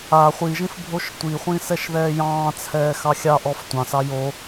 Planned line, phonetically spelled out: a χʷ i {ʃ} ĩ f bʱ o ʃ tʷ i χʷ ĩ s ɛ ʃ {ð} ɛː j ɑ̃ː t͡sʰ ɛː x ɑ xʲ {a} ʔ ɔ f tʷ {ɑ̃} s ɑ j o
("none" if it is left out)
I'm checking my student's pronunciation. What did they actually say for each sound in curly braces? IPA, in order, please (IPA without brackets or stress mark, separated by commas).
ʒ, ð, ɑ, ɑ̃